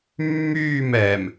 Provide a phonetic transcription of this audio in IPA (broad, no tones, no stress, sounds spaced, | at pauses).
mː yː m ɛ m